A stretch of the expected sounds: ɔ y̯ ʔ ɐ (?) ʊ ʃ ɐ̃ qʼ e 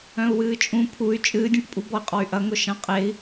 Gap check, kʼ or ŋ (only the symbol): ŋ